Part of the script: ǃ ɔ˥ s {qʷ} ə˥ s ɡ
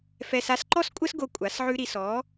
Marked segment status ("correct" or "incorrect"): incorrect